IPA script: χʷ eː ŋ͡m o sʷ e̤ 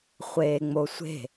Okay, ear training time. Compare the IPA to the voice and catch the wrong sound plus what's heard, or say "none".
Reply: none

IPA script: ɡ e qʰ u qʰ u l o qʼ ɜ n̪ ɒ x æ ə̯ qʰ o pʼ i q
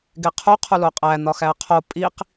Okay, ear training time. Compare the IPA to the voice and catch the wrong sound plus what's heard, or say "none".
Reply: ɜ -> æ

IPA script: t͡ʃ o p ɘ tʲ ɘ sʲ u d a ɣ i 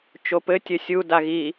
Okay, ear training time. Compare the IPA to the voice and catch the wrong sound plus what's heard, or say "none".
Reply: none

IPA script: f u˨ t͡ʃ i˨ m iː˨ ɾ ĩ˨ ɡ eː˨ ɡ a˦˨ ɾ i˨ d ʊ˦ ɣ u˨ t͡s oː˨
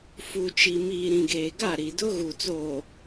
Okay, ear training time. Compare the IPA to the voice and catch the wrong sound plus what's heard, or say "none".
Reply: none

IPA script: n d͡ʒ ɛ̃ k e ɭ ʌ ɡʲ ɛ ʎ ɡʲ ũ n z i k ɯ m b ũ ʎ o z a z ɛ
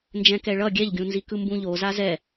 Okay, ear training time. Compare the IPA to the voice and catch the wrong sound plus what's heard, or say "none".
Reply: e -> ɛ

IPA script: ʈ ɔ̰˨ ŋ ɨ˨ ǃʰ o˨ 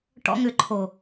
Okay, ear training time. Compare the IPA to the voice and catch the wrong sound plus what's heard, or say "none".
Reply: ɨ˨ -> ʏ˨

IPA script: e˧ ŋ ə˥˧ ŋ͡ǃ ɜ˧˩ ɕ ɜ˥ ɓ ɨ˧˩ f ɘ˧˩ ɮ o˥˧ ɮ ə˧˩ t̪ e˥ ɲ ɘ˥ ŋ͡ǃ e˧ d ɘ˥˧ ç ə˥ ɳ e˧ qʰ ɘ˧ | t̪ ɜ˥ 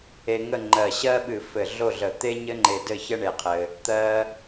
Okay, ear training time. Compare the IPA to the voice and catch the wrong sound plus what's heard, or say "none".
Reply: none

